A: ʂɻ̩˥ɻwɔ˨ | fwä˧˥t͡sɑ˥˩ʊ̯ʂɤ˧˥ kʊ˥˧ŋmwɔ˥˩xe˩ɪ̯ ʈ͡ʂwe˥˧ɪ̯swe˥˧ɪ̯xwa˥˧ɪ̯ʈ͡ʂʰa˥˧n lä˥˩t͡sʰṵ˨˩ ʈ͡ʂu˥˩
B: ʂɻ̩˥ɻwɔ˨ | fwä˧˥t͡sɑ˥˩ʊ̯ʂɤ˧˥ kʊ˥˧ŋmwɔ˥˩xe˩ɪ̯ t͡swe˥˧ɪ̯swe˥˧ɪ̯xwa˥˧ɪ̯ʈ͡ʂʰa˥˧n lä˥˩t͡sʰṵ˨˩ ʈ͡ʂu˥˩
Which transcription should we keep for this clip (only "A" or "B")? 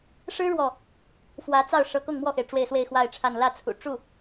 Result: A